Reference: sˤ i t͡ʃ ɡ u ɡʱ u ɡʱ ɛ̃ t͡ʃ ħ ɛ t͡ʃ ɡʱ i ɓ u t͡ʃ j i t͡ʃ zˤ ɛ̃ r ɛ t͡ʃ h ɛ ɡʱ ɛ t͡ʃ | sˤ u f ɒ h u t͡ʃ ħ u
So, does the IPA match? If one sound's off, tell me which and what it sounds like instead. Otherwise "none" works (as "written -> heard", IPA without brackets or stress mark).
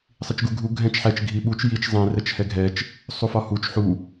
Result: none